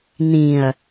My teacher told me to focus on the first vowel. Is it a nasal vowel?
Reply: yes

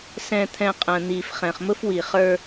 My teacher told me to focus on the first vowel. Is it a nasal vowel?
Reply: yes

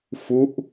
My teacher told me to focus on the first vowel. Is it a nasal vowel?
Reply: no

